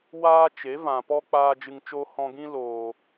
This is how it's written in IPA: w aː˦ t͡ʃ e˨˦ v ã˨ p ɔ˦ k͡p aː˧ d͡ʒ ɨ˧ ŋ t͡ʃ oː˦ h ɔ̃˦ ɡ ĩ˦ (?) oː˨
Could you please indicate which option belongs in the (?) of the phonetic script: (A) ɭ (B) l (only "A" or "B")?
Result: B